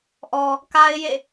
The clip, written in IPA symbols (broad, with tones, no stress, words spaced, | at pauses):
ʔɔ˨ | ka˦ɪ̯jḛ˦˨